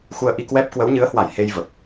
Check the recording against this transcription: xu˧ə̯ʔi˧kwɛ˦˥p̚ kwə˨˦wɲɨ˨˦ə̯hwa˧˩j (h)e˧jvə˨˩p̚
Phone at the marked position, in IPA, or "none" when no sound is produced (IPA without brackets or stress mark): h